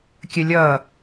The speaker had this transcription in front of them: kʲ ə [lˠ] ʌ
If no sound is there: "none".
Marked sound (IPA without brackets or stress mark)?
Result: lʲ